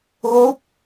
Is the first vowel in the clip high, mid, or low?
mid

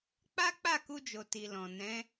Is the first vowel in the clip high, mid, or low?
low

